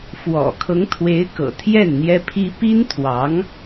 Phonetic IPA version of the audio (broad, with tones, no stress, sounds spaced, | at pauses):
f w ɔ̰˨˩ kʰ ɤ˧˥ ŋ t̪ʰ w e˧˥ ɪ̯ k ɤ̰˨˩ t̪ʰ j ɛ˥˩ n n̪ j ɛ˥ pʰ i˥ p i˥ n t̪ʰ w ɑ˧˥ ŋ